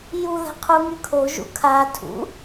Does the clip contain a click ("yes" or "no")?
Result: no